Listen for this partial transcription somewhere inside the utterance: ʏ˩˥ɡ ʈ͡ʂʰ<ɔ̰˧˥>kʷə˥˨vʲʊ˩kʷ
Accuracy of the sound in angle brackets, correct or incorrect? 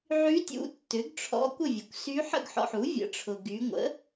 correct